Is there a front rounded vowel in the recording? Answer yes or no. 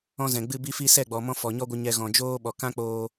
no